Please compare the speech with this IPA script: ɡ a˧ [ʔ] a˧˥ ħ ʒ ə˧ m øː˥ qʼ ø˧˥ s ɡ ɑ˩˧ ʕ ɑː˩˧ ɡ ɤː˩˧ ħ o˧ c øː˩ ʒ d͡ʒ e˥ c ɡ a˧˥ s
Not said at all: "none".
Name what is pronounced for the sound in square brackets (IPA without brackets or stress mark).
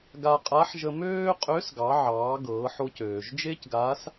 qʼ